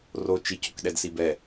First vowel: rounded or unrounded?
rounded